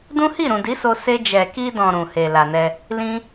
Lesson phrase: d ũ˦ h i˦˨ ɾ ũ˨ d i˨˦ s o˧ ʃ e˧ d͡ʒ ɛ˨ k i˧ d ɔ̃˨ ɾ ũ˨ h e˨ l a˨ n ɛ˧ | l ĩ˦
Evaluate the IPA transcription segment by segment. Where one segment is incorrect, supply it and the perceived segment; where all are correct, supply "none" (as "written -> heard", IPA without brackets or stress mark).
ʃ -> s